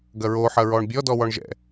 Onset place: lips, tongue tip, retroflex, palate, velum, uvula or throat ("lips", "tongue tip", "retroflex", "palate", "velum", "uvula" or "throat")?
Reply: velum